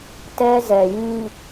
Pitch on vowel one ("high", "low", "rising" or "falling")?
high